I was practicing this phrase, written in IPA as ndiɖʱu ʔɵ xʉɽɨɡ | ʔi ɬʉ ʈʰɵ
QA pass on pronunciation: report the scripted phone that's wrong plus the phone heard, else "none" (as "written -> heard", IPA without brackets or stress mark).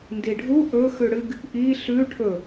none